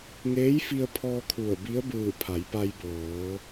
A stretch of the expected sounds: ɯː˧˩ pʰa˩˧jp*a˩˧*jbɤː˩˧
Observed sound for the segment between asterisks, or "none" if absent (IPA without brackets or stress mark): a˧